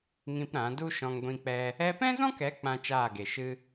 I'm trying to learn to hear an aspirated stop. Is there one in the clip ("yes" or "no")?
no